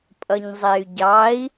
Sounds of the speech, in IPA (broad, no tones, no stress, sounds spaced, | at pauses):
pʼ ʌ ɲ zˤ e y̯ ɟ ɑ i̯